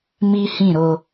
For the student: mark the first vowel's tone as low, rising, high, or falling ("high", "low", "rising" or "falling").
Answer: high